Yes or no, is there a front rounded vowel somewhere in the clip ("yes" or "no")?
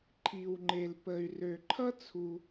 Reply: yes